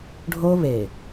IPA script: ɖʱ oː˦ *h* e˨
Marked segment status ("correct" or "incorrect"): incorrect